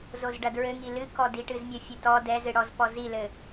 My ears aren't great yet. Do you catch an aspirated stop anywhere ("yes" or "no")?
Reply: no